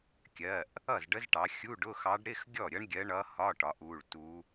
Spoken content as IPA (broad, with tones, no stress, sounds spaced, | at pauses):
kʲ ɜ˩˧˩ ʔ | ʌ˥˩ z ɖ ə˧˥ z ʈ ɑ˩˧ xʲ u˧˥˧ ɖ ʊ˧˥˧ x ɑ˧˥ ɖ ɾ ɪ˧˥˧ x ɡʲ ɔ˥˩ ɾʲ ʌ˧˥ ɳ ɡʲ ɜ˧˥ ɳ ʌ˧˥ h ɒ˧˥˧ ʈ ɒ˩˧ ʔ u˩˧˩ ɭ t u˧˥